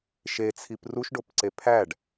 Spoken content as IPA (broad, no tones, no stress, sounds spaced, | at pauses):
ʃ e t͡sʰ i p r u ʃ ɖ o p ǀ e pʰ æ ɖ